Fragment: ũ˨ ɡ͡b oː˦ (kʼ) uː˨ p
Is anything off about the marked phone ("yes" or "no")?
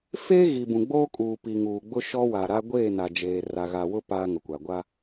no